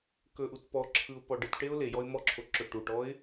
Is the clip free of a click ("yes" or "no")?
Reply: no